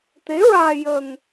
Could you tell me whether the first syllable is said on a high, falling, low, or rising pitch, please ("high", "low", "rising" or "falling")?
rising